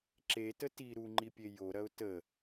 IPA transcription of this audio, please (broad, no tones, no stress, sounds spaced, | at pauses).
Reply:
ǁ e t ə t i ɾ u ŋ͡ǃ i pʲ e j o ɾ ɐ ʊ̯ t ə